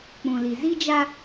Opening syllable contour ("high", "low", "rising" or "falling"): low